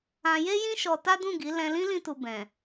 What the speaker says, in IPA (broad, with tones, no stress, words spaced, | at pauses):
ã˧je˦jĩ˦ ʃɔ˧ ta˦dũ˦˨ɡi˨˦ lɛ̃˧lĩ˦ lĩ˦tu˧ bɛ̃˨